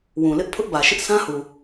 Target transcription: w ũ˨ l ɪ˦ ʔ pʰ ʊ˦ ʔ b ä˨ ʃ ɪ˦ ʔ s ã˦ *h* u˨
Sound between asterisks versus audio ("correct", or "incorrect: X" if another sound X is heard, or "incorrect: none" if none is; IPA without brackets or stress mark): correct